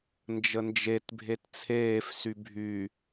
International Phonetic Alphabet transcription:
n d͡ʒ ə n d͡ʒ e t bʱ e t t͡sʰ eː f s y bʱ y

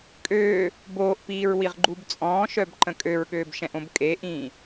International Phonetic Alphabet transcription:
kʼ øː | b oː ʔ p iː ɹ w i ʁ ɡ͡ǃ u b t͡sʼ ɔ̃ː ʃ œ b ǃ ə̃ kʼ ø ɹ ɠ øː b ʃ ɛ̃ ʔ õ b kʼ e ʔ ĩː

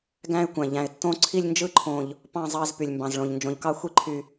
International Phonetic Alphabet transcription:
ɡ æ̃˦˨ ɪ̯ kʷ æ̃˩ ʎ æ̃˩ ɪ̯ tː õ˦˨ ǀʰ i˦˨ lʲ n d͡ʒ ɯ˦˨ ǃʰ õ˩ ʎ | p ɑ̃˦˨ zˤ ɑ˦˨ z p y˩ lʲ m b ɑ̃˩ z ɭ õ˩ ʎ n d͡ʒ õ˩ ʎ k ɑ˦˨ xʷ i˦˨ ǃʰ y˩

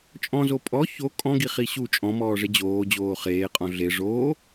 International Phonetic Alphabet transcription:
t͡ʃʼ ɔ̃ z o pʼ ɔ ç o kʼ ɔ̃ ɡ i χ i ɕ u t͡ʃʼ ɔ̃ m ɔː ʐ e d͡ʑ oː d͡ʑ oː χ eː qʼ ɔ̃ ɮ e ʐ oː

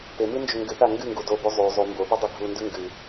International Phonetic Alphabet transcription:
p e m ɨ n d͡ʒ ɵ ŋ ɡ ɨ θ a ŋ ɡ ɨ ŋ ɡ u d o b ʉ zˤ ʉ zˤ ʉ m b o p e dˤ e ɡʱ u n d ʉ ŋ ɡ ɨ

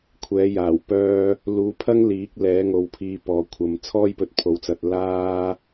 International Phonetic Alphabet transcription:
kʷʰ ɛː˨˥ j aː˨˩ w p œː˧ | l uː˨˧ pʰ ɐ˥ ŋ l iː˨˥ k̚ l ɛː˨˥ ŋ o˨˧ w pʰ iː˧ p ɔː˧ kʷʰ ɐ˧ m t͡sʰ ɔː˥ j p ɵ˧ t̚ pʰ o˨˥ w t͡s ɐ˧ t̚ l aː˥

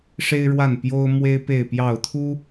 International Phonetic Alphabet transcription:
ʂ e˦ ɪ̯ ɻ w a˥˨ n p j o˦ ʊ̯ m w e˦ ɪ̯ p e˥˨ ɪ̯ p j ɑ˥˨ ʊ̯ t̪ʰ u˦

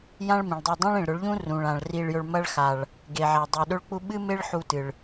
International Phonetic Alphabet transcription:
j ã˦ ɭ m ĩ˨ ɭ dˤ ɵ˧ dˤ ẽ˦ ɭ ĩ˨ ɭ ɾ ɵ˨˦ ɭ ʎ ũ˦ r ũ˨ ɭ ã˨ ɭ r i˧ ɭ j ɵ˧ ɭ m ɐ˦ ɭ x a˨ ɭ | ɡ e˨ ʕ a˨ dˤ u˨ ɗ ɵ˦ ɭ k͡p u˦ ɓ ɨ˦ m e˦ ɭ ħ u˧ t ɨ˨ ɭ

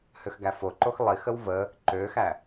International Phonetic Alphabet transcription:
h ø x ɡ æ f o ǃ o x lˠ i x ə w v ə | ǃ øː x æ

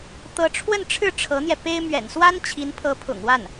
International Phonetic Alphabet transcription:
t̪ ɤ˧˥ ʈ͡ʂʰ w ə˥˧ n ʈ͡ʂʰ ɻ̩˥˩ ʈ͡ʂʰ ɤ˧˥ n̪ j ɛ˧ p e˥ ɪ̯ m ɥ ɛ̰˨˩ n s w a˥ n t͡ɕʰ i˧˥ n pʰ ɤ˧˥ pʰ ʊ̰˨˩ ŋ w a˥˩ n

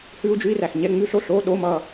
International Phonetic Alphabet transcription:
h ʉː˥ u̯ d͡ʒ ʉ˥ i̯ r æ˧˩ x ɲ ɛ˧˥˧ ŋ͡m ʉ˧˥˧ ɬ o˥ ɬ oː˧˥˧ ɗ o˧˥˧ m ʌː˧˩

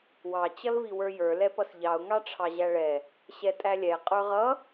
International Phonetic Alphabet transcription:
w ɑ t͡ɕ ʌ l v i w ə˞ j ə˞ l ɛ p ʌ s ʎ ɑ ʊ̯ ŋ ɑ ʈ͡ʂʰ ɑ ʑ æ ɭ ɛ | ɕ ɛ tʼ æ lʲ ɛ qʼ ə˞ ʁ ʌ

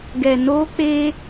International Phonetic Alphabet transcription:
ɡ ɛ˨ n o˦ k͡p e˦

